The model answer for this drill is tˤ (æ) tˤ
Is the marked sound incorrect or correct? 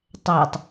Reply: correct